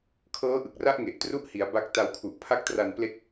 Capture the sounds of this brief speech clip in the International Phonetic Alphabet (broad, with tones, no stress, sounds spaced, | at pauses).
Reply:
kʰ ɤː˦˥ ʔ ɯ˨˩ k̚ r a˦˥ ʔ ŋ e˨˩ ʔ t r u˥˩ ʔ h i˩˦ a̯ b a˦˥ k̚ t a˧ w kʰ u˨˩ ʔ pʰ a˦˥ k̚ t r a˧ n p l e˦˥ k̚